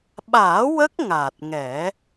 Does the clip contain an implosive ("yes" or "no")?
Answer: yes